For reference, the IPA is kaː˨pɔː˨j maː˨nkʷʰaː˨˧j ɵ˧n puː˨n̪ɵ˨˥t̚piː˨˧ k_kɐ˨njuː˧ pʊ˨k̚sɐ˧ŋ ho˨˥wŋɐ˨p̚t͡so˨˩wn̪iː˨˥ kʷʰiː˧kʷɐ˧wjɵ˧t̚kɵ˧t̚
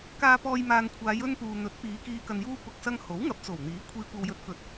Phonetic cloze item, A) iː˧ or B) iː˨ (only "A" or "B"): B